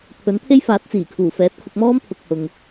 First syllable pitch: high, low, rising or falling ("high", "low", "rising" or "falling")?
rising